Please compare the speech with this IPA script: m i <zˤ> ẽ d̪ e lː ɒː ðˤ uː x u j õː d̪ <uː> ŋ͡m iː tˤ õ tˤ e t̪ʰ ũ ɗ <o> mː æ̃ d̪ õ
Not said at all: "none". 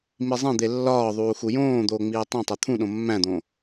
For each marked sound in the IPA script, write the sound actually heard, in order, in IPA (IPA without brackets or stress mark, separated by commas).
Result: zˤ, oː, õ